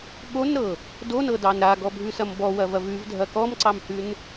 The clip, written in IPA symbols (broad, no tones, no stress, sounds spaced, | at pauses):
ɠ o n ɾ ɤ | d o n ɤ d ɑ n ɾ a ɡ ɔ bʱ ʉ s ɐ m b ɔ w ɐ v ɐ v ʉ v dʱ ɐ k ɔ m ǀ ɑ m h ʉ n